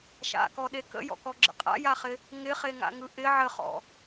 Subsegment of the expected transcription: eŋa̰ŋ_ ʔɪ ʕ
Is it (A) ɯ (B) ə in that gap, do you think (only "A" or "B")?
A